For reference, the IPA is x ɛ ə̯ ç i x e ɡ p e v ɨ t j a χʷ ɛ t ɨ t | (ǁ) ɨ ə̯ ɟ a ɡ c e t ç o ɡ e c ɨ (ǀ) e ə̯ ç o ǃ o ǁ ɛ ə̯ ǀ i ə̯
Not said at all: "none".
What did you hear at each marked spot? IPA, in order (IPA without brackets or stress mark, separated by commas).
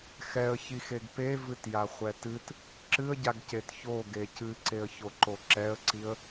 ǁ, ǀ